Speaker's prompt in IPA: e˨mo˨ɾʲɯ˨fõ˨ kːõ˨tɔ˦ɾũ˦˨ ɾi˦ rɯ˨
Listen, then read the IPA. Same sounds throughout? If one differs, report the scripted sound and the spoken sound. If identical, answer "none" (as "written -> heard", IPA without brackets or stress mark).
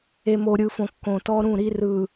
none